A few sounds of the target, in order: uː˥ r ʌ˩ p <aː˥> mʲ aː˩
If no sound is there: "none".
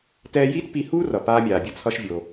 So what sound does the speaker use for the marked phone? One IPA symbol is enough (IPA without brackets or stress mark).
aː˥